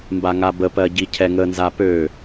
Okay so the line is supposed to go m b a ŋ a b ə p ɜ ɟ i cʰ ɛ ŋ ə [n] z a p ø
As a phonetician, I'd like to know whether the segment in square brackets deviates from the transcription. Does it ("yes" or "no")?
no